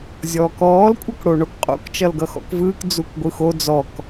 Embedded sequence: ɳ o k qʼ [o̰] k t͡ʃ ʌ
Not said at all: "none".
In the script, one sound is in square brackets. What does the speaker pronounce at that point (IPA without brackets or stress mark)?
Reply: o̰